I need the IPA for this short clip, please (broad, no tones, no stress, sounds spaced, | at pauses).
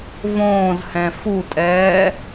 v õː z h ɛ̃ f u tʼ ɛː